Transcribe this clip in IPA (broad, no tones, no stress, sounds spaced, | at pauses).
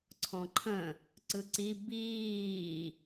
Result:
ǀʰ ɔ̃ ǃʰ ə̃ | ǀ ɯ ǀ i b iː